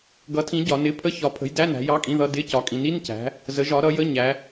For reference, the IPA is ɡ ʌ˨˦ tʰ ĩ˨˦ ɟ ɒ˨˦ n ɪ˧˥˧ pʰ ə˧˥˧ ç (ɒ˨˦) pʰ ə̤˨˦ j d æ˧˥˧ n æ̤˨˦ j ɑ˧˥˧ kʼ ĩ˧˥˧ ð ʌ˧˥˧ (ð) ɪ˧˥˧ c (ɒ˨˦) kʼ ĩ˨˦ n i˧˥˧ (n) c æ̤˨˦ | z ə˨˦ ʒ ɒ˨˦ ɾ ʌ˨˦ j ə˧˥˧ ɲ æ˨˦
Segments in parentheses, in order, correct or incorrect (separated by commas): correct, incorrect, correct, correct